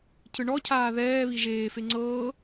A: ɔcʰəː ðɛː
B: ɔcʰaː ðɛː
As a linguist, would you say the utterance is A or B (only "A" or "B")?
B